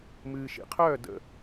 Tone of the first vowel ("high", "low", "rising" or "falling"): low